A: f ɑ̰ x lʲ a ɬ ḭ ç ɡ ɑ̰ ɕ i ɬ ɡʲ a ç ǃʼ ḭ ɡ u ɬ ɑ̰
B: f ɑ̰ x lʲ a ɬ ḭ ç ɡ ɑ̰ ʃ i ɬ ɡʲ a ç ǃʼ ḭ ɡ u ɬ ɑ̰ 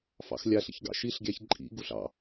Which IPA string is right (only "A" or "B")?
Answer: B